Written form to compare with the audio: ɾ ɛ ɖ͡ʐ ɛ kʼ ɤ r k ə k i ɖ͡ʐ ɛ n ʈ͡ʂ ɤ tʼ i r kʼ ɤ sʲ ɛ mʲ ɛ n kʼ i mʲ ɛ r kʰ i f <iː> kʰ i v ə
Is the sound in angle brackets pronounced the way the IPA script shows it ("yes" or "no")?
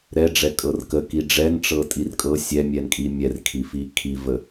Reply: no